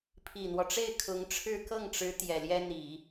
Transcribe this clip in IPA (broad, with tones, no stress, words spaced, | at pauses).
pʰi˨˩n̪wɔ˦ʈ͡ʂe˥˩ɪ̯ kʰʊ˧˥ŋʈ͡ʂʰɻ̩˥ kɤ˥˩ŋʈ͡ʂɻ̩˧˥ t̪jɛ˨˩ljɛ˥ n̪i˨˩˦